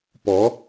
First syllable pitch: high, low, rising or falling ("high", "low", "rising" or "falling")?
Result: rising